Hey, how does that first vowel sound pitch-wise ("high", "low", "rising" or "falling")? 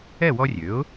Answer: falling